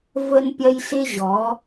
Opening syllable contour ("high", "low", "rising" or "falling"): high